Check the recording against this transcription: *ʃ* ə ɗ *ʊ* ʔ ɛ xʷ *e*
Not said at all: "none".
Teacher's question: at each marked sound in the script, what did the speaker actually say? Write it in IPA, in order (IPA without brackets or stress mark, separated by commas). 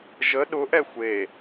ʒ, ʊ, e